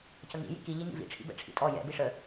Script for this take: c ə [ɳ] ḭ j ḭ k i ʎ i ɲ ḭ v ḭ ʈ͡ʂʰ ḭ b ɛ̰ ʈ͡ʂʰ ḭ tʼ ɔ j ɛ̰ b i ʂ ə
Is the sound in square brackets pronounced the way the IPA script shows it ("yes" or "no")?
no